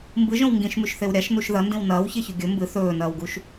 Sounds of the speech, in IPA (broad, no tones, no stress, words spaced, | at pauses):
mbɨʒõw ŋɡĩʃmʉʃθew ɾʲaʃnuʃ ðɐndĩw nɐːwçeçɵ ɡʲɵ mbɨ θɵːnɐːwɡuʃ